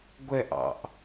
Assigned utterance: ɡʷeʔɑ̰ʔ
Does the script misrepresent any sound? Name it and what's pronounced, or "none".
e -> ɛ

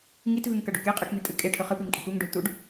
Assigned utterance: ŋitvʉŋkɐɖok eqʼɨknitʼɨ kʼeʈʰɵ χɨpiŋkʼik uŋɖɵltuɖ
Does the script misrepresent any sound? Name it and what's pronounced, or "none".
none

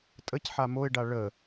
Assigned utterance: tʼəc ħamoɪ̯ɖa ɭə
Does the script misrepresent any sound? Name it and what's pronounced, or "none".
none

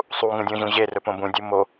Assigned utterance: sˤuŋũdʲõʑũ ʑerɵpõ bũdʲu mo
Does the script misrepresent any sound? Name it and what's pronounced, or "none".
none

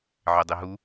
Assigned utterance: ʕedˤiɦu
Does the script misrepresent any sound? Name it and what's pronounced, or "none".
none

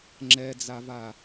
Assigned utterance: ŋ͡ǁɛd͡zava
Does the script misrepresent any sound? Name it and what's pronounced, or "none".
none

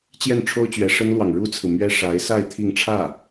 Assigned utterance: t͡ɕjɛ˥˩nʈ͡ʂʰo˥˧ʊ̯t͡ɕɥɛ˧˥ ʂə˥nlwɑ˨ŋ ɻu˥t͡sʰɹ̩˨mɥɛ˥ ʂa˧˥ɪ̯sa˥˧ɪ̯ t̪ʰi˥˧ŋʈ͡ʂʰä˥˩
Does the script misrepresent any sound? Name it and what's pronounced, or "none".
o˥˧ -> o˥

